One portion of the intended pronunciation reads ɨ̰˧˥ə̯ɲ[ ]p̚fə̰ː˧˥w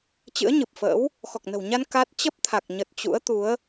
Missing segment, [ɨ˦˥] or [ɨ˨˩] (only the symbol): ɨ˨˩